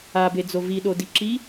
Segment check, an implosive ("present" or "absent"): present